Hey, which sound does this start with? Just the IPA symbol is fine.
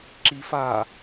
ǁ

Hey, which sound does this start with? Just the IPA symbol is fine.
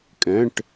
kʼ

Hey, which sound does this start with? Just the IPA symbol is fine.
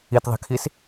i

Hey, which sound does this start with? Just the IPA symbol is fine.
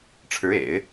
ʈ͡ʂʰ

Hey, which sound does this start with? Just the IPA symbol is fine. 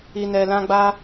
i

